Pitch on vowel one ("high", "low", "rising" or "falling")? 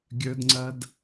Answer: high